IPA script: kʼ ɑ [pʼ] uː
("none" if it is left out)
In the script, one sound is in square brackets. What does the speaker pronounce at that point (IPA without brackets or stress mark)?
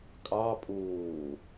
pʼ